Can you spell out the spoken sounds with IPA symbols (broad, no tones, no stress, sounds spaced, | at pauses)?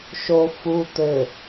ʃ o f u t̪ ɘ